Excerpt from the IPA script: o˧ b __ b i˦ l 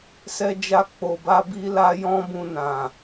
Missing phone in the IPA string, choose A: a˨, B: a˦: B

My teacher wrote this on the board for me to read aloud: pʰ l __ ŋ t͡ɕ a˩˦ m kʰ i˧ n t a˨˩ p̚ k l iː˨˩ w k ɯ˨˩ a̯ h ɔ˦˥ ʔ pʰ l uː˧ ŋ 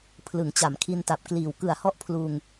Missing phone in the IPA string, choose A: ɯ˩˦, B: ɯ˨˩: A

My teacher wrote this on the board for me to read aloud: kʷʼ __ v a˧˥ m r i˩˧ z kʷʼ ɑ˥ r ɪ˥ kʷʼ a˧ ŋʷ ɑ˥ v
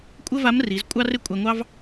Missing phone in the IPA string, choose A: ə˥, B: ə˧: A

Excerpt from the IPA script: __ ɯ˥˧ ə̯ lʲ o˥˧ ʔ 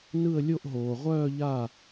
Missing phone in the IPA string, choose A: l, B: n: B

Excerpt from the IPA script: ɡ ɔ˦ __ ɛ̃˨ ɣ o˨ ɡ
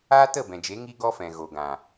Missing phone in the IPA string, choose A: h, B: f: B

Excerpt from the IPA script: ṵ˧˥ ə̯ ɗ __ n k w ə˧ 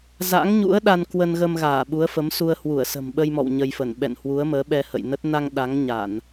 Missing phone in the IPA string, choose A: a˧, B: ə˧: A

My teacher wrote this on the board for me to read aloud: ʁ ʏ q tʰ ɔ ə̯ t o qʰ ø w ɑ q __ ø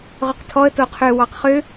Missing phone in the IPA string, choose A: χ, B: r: A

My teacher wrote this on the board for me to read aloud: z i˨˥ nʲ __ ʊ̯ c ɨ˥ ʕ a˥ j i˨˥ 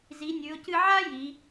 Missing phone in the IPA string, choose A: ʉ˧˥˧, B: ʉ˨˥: B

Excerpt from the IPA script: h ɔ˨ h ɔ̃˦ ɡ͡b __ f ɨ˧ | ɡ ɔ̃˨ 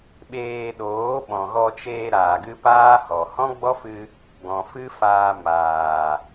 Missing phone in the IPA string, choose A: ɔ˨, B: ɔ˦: B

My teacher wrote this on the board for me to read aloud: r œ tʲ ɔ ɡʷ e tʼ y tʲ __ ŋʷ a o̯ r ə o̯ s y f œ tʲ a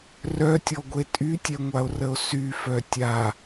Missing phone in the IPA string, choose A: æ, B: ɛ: B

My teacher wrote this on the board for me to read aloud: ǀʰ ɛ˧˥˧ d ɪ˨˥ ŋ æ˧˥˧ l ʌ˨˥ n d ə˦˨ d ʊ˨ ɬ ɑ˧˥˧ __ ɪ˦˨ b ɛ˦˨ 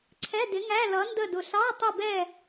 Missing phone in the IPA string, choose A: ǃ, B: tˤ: B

